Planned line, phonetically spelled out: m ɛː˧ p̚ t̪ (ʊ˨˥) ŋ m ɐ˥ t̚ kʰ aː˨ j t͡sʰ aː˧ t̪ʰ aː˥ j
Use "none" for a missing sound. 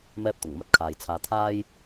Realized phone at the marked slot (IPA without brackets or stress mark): ʊ˨˩